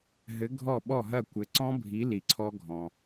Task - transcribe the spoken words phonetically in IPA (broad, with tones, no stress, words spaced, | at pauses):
ɦɘ˨˥ ɡʱɔ˥˩ ɓɔ˥˩ɦɐ˥˩kʷɘ˨˥ ǀɔ̃˦˥ bʱi˨˥ li˨ǀʰɔ˦˥ ɡʱɔ̃˨